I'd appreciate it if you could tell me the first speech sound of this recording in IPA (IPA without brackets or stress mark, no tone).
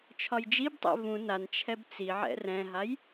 t͡ʃʰ